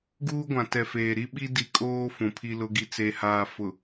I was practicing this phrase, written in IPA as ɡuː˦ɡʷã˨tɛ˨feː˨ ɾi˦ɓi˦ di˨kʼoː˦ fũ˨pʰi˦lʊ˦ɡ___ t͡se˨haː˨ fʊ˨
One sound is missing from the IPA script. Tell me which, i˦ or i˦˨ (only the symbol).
i˦